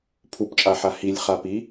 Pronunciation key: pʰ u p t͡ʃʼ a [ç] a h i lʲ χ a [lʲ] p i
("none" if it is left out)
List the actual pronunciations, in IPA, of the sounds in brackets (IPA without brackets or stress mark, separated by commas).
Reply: ħ, none